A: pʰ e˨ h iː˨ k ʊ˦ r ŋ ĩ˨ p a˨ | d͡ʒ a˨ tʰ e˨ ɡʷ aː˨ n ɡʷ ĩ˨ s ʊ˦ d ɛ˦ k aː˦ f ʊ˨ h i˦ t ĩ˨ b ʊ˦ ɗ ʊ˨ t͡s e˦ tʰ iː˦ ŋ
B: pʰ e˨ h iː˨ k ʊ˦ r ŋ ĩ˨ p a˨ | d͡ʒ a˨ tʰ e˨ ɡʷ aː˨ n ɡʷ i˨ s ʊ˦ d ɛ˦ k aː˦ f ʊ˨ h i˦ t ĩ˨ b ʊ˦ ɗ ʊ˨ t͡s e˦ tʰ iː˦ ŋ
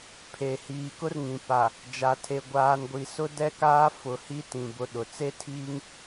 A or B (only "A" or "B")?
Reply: B